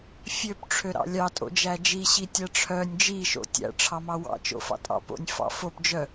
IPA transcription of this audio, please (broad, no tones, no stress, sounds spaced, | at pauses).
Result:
fʲ ø p ʈ͡ʂʰ ø ɾ ɑ̰ lʲ ɑ tʼ o̰ d͡ʒ æ d͡ʒ i ɕ i tʲ æ ʈ͡ʂʰ œ nʲ d͡ʒ i ʃ o̰ tʲ æ̰ ʈ͡ʂʰ ɑ m ɑ w ɑ̰ t͡ʃ o̰ f ɑ̰ tʼ ɑ̰ p o̰ nʲ f ɑ̰ f o p d͡ʒ œ